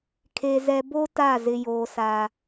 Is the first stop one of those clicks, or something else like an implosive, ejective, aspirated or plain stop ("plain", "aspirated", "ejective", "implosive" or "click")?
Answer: aspirated